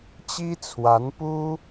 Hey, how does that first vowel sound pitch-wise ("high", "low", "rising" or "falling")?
high